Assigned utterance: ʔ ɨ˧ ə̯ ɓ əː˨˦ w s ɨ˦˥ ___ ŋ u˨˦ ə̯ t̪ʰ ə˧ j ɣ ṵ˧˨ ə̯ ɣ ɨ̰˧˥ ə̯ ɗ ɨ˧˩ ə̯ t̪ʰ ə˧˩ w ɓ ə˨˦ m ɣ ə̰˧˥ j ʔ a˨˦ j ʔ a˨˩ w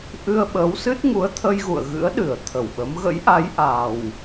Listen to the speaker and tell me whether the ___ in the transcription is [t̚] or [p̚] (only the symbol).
t̚